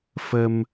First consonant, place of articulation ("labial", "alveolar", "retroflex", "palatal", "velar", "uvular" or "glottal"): labial